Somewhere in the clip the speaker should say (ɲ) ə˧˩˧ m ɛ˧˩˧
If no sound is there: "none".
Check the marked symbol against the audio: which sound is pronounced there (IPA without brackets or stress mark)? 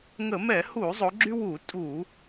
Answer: ŋ